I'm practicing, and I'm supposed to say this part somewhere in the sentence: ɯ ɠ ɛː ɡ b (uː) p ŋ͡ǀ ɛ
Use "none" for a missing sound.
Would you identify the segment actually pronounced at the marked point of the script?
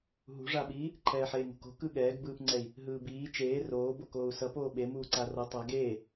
ɯː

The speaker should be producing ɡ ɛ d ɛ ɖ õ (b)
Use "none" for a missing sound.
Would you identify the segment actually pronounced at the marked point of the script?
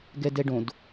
d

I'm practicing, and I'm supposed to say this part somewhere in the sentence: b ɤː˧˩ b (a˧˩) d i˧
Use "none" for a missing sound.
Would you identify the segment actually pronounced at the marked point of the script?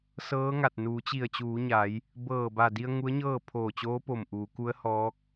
a˧˩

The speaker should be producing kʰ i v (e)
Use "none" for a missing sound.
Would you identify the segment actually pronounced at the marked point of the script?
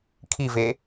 e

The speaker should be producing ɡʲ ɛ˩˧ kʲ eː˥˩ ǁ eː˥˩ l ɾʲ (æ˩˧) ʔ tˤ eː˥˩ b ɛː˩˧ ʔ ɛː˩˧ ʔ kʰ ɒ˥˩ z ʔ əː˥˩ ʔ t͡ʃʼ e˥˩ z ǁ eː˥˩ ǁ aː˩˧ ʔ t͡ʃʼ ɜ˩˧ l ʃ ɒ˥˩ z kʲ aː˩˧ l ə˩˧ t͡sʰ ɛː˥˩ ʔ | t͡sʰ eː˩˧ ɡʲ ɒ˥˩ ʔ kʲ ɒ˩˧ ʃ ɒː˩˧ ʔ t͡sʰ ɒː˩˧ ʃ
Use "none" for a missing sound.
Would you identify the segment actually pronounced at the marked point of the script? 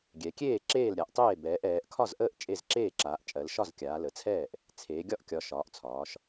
a˩˧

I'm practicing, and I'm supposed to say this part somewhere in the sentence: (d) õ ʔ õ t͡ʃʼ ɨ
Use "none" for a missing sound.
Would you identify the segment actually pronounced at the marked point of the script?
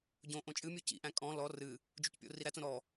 ɟ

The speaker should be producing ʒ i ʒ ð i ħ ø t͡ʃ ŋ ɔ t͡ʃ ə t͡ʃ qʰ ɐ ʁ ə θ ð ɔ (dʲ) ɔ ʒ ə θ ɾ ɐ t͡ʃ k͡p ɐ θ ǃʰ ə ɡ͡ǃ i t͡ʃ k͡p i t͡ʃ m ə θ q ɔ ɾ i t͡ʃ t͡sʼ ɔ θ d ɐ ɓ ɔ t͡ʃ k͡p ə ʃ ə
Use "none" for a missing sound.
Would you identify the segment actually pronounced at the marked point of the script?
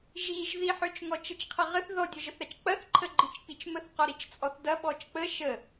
dʲ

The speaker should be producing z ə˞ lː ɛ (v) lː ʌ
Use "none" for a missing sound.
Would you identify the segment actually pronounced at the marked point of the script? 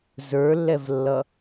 v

